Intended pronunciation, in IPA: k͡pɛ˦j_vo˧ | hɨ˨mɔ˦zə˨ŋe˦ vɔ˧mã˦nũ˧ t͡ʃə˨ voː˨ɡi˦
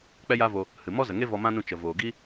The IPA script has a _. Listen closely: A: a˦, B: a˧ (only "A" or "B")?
A